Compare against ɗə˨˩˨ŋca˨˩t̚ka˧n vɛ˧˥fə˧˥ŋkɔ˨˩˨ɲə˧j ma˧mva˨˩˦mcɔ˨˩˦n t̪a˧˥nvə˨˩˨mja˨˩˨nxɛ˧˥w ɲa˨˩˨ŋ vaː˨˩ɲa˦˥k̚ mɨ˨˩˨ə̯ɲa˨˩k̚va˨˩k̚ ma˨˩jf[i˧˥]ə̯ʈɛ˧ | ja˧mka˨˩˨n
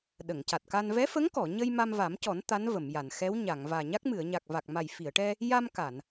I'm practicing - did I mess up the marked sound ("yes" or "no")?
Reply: yes